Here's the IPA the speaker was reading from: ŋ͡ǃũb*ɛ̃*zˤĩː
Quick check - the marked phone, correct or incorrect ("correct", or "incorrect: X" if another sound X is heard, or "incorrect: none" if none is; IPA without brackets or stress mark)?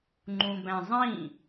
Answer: incorrect: æ̃